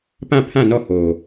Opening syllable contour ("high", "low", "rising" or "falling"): falling